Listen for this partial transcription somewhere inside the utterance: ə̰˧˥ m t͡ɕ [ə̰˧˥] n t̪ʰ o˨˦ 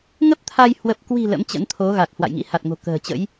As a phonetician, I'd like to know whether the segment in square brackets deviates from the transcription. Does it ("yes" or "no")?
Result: no